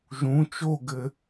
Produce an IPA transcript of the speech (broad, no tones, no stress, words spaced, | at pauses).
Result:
ʒũ t͡ʃoɡɘ